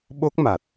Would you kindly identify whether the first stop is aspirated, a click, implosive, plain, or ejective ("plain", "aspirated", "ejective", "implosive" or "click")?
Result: implosive